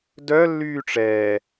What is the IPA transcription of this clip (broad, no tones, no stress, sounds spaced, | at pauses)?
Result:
d œ lː yː ʈ͡ʂ ɛː